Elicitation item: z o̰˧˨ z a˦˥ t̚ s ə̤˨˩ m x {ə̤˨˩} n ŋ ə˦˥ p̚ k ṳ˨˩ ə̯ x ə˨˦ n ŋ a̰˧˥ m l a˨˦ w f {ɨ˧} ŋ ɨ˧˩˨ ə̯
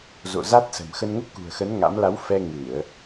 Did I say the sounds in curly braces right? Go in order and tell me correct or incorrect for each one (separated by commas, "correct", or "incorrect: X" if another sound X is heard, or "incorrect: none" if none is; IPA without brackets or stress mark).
incorrect: ə˧, incorrect: ɛ˧